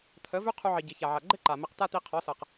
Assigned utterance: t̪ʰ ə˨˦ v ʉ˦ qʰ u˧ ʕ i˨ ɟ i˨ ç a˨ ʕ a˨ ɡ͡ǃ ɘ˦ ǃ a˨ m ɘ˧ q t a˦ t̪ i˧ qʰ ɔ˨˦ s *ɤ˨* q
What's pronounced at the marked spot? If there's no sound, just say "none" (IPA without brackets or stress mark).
ɤ˨